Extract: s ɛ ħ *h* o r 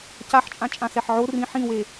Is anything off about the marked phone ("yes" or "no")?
yes